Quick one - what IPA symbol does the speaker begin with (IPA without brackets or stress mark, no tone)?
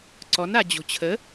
ǀ